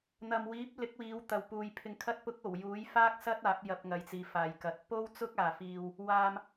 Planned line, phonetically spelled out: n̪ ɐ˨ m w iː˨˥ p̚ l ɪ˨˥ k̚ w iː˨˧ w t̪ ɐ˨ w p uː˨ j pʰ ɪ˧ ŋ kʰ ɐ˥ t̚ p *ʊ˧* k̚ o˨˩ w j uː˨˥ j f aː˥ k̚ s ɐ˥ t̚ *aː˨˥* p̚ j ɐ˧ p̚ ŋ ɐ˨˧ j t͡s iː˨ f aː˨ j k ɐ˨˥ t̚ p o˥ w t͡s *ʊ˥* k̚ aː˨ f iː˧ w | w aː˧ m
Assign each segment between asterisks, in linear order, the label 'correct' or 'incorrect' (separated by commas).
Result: incorrect, correct, correct